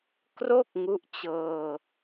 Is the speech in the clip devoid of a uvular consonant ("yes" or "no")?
yes